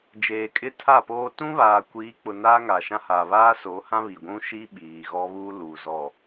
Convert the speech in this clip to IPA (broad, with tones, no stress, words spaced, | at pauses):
d͡ʒeː˨kʼɪ˦tʰa˦˨poː˦ tũ˦βaː˨kʷiː˨˦k͡pʊ˨ naː˦ŋa˨ʃã˦ haː˨βaː˦so˨˦hã˦ βi˨ɡʷũ˦ʃi˦ ɓiː˨ɣɔ˦βuː˦luː˨ zɔ˨